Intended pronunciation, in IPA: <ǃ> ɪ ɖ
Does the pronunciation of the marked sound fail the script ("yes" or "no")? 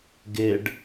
yes